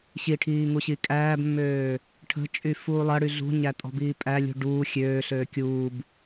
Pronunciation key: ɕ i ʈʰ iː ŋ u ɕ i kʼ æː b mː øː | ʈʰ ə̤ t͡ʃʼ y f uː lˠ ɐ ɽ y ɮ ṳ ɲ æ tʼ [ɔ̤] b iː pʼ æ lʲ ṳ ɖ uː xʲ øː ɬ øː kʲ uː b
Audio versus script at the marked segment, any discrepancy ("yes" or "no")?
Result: no